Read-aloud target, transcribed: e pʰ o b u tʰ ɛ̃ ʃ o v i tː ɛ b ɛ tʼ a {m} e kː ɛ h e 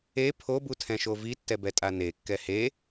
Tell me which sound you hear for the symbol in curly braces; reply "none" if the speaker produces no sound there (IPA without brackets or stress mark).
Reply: n